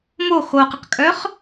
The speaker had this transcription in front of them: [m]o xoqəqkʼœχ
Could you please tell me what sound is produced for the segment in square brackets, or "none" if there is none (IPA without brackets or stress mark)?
m